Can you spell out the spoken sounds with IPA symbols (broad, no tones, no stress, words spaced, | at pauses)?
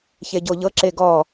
çeɟoʎɤ ǁeɡɔ